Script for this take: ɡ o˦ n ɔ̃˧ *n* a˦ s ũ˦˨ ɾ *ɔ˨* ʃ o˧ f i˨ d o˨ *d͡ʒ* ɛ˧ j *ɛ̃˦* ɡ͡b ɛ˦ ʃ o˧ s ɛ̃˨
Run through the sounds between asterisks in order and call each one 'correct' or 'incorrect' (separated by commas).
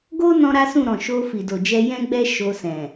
incorrect, incorrect, correct, correct